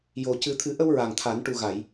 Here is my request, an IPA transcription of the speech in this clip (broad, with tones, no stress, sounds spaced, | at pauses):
j o˨˩ c ɨ˨˩˦ t̪ʰ ɨ˨˩˦ ʔ ə˧ w ɹ a˨˩ ŋ t̪ʰ a˨˩˦ n ʈ u˨˩ ɣ a˨˩˨ j